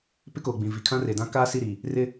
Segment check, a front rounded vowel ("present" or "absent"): absent